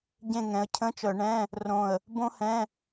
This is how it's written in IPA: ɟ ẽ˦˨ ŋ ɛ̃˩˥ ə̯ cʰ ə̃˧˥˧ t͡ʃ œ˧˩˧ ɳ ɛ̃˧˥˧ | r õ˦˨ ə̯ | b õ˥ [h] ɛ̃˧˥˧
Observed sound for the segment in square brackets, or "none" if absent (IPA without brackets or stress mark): h